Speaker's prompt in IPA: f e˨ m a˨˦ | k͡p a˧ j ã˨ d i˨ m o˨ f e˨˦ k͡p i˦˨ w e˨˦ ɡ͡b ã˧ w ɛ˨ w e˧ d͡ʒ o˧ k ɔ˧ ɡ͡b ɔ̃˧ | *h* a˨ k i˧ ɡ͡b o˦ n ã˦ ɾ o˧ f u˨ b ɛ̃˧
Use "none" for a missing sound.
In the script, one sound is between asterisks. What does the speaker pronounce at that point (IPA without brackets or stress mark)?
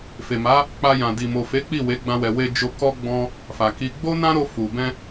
f